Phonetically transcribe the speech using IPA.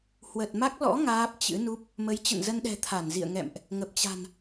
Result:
h w ə˨˩ t̚ m a˦˥ k̚ l ɔ̰˧˥ ŋ aː˦˥ p̚ t͡ɕ ɨ̰˧˥ n u˦˥ p̚ | m ə˨˦ j t͡ɕ ə̰˧˨ n z ə˧ n ɗ ɛ̤˨˩ t̪ʰ a˧˩ n z ḭ˧˨ ə̯ ŋ ɛ̰˧˨ m ʔ | ŋ ə˨˩ p̚ t͡ɕ a̤˨˩ n

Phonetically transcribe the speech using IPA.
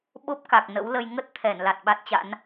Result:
ɓ o˦˥ p̚ k a˨˩ k̚ n ə̰˧˥ w l ə˧ j ŋ ə˦˥ t̚ t̪ʰ ɛ˧˩ n l a˨˩ t̚ ɓ a˦˥ t̚ t͡ɕ a̰˧˥ n

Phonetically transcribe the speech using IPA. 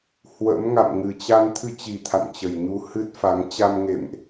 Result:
h w ə̰˧˥ m ŋ a̰˧˨ m ŋ ɨ˨˩ t͡ɕ a˧ n t̪ʰ ɨ˧ t͡ɕ i˨˩ t̪ʰ a̰˧˨ n t͡ɕ ə˨˩ j ɲ u˧ h ɨ˦˥ t̚ f a˨˦ ŋ t͡ɕ a˧ m ŋ ḛ˧˨ m ʔ

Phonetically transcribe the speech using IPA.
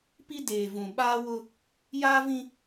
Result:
p i˦ d eː˨ v ũ˨ ɓ aː˦ w ʊ˦ | j aː˦ v ĩ˦

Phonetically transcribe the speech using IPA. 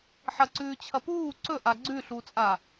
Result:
ħ ɐ ǀ ʉː t͡ɕʰ ɐ p uː ǀ ɵ ʔ a ɡ͡ǀ ʉ ɬ u t͡sʼ a

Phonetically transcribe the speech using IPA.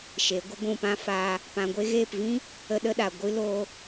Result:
ʃ e˨˦ ɡʷ ə˦ ɡʷ ũ˦˨ p ã˦ f aː˦ | p ã˧ ɡʷ e˦ ɣ eː˦˨ p v ĩ˦ | ə˧ ɗ ə˧ ɗ a˨ ɡʷ ɨ˦ l oː˦

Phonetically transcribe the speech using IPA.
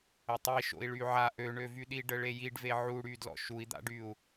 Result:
ə tˤ i ʃ o̰ i̯ ɭ y ʕ a ʔ ø ɳ ø v y ɗ i ɖ ə ɭ e j i ɖ v e ʕ u ɽ y d l ɔ̰ ʃ u i̯ d̪ a̰ ɖ y u̯

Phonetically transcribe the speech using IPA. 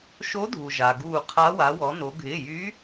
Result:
ʃ o˧˥ dʱ u˩ ʒ a˩ ɡ uː˧˩ qʰ a˧˥ w a˩˧ w ɔ˩˧ n o˩˧ ɡʱ ɪː˩˧˩ j yː˧˥

